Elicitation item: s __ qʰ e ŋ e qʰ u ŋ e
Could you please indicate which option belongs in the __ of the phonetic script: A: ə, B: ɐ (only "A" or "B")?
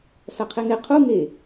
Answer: B